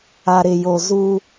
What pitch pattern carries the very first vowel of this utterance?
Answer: low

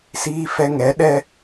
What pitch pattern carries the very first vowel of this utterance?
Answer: high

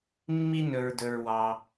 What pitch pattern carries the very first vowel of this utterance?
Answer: high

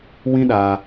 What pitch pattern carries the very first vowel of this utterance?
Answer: high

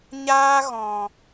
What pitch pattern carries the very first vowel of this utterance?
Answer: high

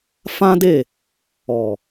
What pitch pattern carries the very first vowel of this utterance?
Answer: high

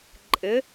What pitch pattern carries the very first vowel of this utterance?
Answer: rising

